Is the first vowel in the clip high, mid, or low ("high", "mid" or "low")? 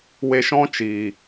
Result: mid